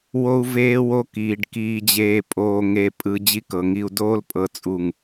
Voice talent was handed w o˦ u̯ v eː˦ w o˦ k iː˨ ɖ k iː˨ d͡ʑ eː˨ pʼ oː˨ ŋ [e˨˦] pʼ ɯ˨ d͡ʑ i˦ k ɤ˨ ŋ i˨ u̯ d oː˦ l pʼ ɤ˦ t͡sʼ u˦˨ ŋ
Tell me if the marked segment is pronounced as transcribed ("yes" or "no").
no